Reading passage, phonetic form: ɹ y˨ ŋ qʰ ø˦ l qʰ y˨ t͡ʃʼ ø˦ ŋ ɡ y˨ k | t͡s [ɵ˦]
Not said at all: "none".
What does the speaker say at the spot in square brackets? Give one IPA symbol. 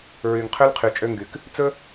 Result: ɵ˦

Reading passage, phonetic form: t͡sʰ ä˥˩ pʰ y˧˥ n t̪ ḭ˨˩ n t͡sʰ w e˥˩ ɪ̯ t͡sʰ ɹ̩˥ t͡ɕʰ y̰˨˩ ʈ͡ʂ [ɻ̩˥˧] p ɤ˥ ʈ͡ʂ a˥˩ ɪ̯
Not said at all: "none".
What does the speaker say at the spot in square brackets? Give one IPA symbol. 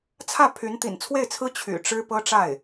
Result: ɻ̩˥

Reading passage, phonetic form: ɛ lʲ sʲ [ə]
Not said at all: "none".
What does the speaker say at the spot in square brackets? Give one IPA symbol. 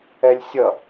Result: ʌ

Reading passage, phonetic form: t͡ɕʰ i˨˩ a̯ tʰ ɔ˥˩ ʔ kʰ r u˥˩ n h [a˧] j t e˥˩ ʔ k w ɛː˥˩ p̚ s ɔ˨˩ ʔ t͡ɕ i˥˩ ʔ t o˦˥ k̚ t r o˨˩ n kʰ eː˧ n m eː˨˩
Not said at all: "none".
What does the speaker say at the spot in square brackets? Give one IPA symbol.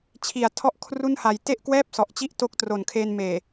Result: a˨˩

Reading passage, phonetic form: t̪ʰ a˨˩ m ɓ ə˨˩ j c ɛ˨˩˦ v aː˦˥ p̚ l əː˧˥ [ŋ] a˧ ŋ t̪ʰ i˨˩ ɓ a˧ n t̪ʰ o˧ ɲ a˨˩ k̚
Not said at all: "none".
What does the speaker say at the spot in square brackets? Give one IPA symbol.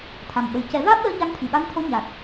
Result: ɲ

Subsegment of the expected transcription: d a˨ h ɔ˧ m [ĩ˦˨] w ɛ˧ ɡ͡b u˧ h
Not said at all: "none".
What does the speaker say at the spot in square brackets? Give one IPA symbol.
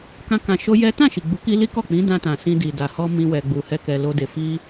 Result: ĩ˦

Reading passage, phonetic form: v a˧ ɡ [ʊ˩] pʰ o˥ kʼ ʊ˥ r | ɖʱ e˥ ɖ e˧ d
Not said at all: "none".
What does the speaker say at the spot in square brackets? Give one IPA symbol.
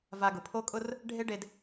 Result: ʊ˩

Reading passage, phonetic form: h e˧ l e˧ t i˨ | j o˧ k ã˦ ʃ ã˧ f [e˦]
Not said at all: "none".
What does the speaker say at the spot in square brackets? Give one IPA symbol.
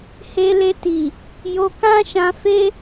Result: e˦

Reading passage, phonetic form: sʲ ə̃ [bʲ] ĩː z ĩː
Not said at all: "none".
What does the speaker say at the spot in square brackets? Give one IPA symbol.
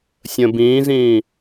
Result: b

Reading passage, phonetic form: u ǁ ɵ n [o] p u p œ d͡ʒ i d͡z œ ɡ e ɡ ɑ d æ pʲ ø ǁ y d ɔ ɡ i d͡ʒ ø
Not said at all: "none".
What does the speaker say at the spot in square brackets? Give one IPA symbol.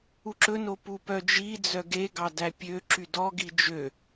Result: o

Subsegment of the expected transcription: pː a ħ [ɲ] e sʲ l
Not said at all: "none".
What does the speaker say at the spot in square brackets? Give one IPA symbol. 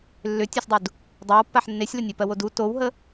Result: nː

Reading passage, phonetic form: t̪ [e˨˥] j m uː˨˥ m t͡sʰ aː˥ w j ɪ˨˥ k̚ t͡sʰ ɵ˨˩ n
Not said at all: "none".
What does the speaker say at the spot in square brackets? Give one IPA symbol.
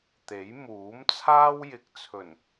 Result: e˨˥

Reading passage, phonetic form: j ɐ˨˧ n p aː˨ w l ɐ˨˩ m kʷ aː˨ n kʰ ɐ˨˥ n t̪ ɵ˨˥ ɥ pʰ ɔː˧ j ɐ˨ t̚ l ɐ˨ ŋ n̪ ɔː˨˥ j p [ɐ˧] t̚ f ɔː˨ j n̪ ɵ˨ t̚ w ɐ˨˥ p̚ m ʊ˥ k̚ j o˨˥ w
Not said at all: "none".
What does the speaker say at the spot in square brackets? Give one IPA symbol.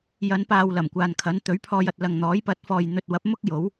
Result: ɐ˨˥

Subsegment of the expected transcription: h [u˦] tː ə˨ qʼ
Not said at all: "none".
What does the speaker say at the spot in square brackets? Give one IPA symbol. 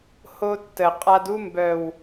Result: o˦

